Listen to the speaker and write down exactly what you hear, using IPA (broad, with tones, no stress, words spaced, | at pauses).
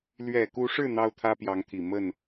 lɥɛ˨˩ku˧˥ʂɻ̩˥˩ n̪ɑ˥ʊ̯t̪ʰä˥pjɑ˧˥ŋt̪ʰi˨˩ mə˥˩n